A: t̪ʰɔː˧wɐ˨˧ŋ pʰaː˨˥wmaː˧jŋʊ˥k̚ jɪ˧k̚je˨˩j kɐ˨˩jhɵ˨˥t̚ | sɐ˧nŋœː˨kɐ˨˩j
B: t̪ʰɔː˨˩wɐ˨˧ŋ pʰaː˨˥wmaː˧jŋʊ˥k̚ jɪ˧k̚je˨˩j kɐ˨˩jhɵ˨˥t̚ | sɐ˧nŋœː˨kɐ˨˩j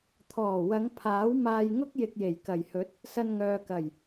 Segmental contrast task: B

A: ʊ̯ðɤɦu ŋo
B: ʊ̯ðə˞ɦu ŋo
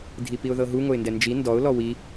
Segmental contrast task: A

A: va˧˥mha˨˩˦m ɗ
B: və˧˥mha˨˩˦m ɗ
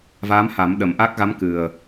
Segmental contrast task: A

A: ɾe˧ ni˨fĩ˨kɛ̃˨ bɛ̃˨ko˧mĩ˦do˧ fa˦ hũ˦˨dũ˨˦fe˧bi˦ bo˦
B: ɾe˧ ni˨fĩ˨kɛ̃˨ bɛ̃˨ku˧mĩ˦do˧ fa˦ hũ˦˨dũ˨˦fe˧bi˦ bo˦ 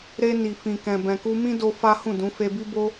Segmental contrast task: B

